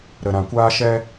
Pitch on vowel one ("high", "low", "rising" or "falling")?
low